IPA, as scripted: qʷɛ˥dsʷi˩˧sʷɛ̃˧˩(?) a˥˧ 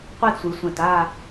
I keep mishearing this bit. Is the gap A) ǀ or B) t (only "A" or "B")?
B